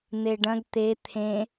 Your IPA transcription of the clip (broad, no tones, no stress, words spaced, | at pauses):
n̪eɖɐ̃ɡ t̪e t̪ʰẽ